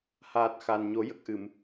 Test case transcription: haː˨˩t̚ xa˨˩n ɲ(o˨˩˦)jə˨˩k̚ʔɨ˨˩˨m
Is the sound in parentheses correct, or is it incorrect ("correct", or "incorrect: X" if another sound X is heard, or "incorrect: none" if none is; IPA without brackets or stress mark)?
correct